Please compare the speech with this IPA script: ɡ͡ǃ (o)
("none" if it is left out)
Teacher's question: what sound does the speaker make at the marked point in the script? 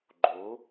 o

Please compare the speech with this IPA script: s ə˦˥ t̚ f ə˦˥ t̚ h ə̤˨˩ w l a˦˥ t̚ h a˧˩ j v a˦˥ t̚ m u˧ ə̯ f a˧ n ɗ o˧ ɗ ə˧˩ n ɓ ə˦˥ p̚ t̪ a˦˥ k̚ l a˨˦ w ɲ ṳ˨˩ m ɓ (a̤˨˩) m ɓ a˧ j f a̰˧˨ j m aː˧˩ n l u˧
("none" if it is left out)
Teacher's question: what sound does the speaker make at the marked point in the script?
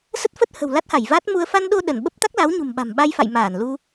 a̤˨˩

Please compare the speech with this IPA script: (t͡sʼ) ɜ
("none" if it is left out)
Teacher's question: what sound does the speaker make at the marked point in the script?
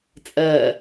t͡sʼ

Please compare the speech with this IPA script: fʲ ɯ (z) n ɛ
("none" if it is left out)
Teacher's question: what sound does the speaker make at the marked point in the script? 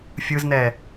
z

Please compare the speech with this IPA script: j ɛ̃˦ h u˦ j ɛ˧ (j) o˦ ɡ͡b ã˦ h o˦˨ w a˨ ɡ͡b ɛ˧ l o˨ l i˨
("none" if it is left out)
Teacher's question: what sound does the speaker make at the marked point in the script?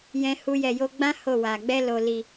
j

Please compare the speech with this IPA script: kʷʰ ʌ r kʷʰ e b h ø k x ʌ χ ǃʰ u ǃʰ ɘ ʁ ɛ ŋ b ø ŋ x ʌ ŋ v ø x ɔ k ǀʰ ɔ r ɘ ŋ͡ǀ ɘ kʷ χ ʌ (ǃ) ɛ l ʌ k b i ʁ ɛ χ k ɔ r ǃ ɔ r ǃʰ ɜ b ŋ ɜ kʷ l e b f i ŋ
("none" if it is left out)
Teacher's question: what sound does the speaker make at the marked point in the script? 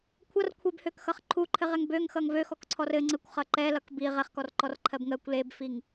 ǃ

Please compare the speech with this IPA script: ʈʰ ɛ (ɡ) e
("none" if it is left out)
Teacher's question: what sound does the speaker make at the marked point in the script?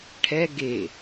ɡ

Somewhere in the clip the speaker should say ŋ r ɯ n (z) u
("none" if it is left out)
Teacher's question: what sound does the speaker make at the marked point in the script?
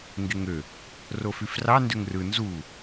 z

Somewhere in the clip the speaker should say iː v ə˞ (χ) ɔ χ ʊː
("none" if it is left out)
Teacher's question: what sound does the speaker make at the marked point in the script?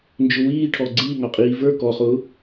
k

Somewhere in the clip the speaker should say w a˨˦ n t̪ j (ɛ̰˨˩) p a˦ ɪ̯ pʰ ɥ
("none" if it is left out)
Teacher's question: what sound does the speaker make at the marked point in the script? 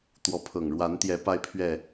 ɛ˨˦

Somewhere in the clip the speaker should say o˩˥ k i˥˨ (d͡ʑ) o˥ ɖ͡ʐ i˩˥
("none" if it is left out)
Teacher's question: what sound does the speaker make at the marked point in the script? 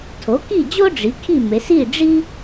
d͡ʑ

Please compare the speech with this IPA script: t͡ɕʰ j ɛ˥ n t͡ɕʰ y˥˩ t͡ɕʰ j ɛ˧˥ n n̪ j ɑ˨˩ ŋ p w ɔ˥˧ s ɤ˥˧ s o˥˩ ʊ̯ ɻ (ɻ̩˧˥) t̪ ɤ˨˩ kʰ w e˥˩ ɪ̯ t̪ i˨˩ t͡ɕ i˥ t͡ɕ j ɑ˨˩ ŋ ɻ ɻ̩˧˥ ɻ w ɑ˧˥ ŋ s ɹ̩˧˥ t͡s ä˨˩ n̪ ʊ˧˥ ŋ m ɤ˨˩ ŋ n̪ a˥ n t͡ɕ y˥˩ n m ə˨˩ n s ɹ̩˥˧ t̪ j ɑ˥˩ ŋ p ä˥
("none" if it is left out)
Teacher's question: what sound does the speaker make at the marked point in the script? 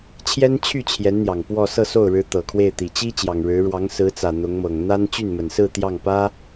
ɻ̩˧˥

